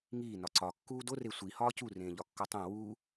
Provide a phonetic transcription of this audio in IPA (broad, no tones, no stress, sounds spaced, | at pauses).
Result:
ŋ iː n ɒ ǀ ɒ kː uː d o r e sʷ i h ɒː c u r ẽː ʎ ɒ kː o tˤ ẽ w uː